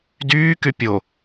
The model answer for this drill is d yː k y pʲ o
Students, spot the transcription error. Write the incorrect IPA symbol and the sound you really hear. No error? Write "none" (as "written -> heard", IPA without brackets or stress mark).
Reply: none